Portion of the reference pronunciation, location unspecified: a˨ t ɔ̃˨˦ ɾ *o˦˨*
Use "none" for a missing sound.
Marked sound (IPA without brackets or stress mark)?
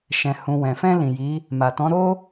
o˦